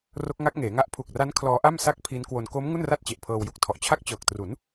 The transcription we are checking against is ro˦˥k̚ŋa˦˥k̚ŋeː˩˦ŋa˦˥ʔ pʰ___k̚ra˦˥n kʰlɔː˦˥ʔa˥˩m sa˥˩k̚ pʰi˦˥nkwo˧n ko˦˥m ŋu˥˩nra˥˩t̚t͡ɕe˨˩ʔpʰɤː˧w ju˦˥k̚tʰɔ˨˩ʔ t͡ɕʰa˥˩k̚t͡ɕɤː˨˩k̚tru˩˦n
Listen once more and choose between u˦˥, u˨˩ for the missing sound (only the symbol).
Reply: u˨˩